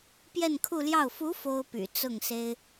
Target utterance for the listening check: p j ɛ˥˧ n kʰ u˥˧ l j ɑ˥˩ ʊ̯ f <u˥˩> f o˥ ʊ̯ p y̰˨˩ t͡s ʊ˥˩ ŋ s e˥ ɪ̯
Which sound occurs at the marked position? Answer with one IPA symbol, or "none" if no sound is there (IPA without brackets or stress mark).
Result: u˧˥